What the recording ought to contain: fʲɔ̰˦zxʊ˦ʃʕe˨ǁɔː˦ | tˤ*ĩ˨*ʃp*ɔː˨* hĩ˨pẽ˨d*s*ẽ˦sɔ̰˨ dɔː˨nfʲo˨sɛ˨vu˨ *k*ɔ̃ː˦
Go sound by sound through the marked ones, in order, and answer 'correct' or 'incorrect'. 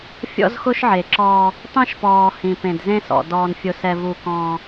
incorrect: ĩ˦, correct, incorrect: z, correct

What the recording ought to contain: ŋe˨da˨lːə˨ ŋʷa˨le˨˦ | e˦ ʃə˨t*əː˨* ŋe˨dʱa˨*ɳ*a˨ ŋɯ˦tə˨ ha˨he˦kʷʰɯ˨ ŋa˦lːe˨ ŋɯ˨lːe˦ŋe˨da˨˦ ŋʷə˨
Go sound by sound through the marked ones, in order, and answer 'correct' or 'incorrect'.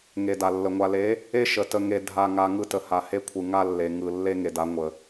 incorrect: ə˨, incorrect: ŋ

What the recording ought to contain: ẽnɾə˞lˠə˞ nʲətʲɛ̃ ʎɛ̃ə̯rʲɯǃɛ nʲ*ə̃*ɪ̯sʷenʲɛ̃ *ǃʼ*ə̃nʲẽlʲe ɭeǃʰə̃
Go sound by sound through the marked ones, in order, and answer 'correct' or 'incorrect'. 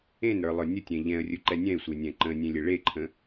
incorrect: ɛ̃, incorrect: ǃ

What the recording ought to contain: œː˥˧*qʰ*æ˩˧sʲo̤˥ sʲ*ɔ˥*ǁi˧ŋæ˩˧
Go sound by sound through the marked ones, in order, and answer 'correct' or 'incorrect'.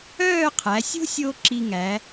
correct, incorrect: o˥

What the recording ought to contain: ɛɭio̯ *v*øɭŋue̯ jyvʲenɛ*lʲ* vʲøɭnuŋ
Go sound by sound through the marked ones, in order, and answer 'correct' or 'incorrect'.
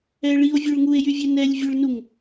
incorrect: vʲ, correct

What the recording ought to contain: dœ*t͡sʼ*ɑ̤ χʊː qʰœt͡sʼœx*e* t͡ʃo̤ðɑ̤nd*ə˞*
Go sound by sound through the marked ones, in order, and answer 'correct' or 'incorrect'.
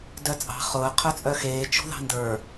correct, incorrect: eː, correct

